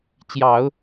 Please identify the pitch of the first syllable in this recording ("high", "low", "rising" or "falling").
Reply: low